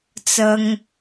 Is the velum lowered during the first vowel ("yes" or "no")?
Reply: no